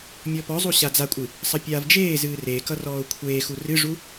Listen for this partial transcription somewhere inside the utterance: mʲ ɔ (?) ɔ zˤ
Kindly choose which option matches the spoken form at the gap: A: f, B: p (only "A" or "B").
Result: B